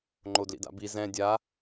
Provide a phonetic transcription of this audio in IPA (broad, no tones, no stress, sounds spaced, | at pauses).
ŋ͡ǃ o d l ḭ d a̰ b i z ɛ̃ dʲ a